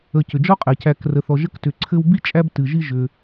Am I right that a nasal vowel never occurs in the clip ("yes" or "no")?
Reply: yes